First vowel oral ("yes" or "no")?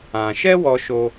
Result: no